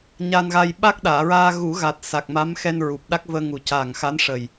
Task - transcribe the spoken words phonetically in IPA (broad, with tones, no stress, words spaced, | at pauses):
ɲa˧nɣa˧j ɓa˦˥k̚ɗaː˨˩˨ɹaː˧ ɣu˨˩˦ɣa˨˩t̚ sa˨˩k̚ma˧˥mxɛ˧n ɹu˨˩p̚ɗa˦˥k̚vəː˧ ŋu˨˩caː˨˩ŋxa˧˥n ʂə˨˩j